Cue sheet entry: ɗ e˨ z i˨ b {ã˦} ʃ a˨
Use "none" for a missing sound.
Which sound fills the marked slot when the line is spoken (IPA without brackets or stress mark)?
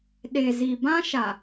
ã˦